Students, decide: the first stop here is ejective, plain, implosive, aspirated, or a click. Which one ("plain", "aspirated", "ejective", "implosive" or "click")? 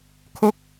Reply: aspirated